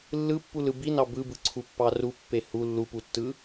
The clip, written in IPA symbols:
lː ɯ pː u l ɯ b i n ɑ b ɯ b ɯ ǀʰ u pː ɑ r u pː e h u lː u p u tː ɯ

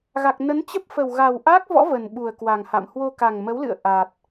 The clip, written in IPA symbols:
ɣ a˨˩ k̚ n ə˨˦ n t͡ɕ ə˦˥ p̚ f ə˨˩ w ɣ a˨˩ w ʔ a˦˥ k̚ v ɔ̰˧˥ v ə˨˩ n ɓ u˨˩ ə̯ k w a˨˩ ŋ h a̰˧˨ m h w o˧ k a˨˩ ŋ m ə˨˦ w l ɨ̰˧˨ ə̯ ʔ a˨˩ t̚

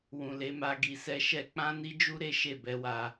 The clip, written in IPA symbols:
w ũ˨ l e˨˦ m a˧ ɡ i˨ s ɛ˧ ʃ ɛ˧ k͡p ã˦ n i˦ d͡ʒ u˦ ɾ e˦ ʃ e˦˨ b ɛ˨˦ w a˧

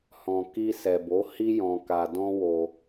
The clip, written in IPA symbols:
h ɔ̃˨ k i˧ s ɛ˨ b o˨˦ h i˦ j ɔ̃˧ k a˧ d ɔ̃˦ w o˧

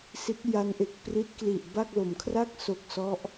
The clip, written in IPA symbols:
s i˦˥ t̚ j a˦˥ n ʔ e˨˩ k̚ p r i˦˥ t̚ k l i˨˩ ʔ b a˥˩ k̚ l o˩˦ m kʰ r a˥˩ k̚ s o˨˩ k̚ s ɔ˦˥ ʔ

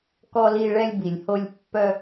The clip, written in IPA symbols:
k ɔ˧ l i˧ ɭ ɛ˧ lʲ b i˩ lʲ h o˧ lʲ pː œ˧

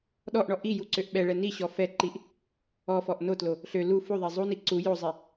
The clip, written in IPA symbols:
ɗ ɔ ʔ ɳ ɔ ʔ i j u ǀ ø ʔ ɓ ɛ ɭ ɛ n i ɕ ɔ f ɛ ǃ i ʔ | ɔ f ɔ ʔ n o t l o | ɬ ø l u f u ðˤ e zˤ u n i ǀ u j o zˤ e

